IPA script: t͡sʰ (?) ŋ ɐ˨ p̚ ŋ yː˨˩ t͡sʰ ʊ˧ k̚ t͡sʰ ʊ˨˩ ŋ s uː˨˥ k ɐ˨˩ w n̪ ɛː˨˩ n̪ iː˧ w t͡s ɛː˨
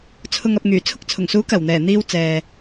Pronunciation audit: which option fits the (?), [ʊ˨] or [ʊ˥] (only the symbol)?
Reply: ʊ˨